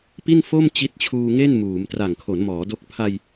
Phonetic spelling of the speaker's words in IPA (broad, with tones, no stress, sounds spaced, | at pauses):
p i˥˩ n f o˥˩ m t͡ɕ i˦˥ t̚ t͡ɕʰ uː˧ ŋ e˥˩ n m uː˩˦ m t r a˨˩ ŋ kʰ o˩˦ n m ɔː˩˦ d o˦˥ k̚ pʰ a˧ j